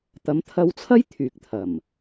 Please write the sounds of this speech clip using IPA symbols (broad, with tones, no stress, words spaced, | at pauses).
t̪ɐ˨˧mt̪ʰɐ˧wt͡sʰɐ˥j t̪ʰyː˨k̚t̪ʰɐ˨˩m